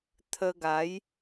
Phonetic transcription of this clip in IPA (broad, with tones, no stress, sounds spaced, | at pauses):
t̪ʰ ə˧ ɡ a˨˦ j